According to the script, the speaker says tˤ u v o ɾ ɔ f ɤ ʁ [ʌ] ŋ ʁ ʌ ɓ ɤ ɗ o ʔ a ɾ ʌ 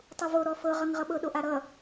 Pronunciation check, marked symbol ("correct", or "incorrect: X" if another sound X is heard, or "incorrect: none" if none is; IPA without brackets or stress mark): correct